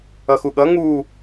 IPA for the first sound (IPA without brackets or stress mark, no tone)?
ʌ